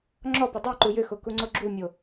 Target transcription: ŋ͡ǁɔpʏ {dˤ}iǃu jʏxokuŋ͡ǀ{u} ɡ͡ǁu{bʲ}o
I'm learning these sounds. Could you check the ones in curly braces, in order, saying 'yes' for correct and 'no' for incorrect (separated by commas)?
yes, no, no